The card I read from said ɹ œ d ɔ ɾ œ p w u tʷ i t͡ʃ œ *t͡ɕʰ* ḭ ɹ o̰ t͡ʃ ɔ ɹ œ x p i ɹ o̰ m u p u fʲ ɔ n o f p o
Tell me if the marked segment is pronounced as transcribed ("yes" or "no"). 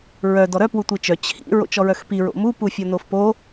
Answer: yes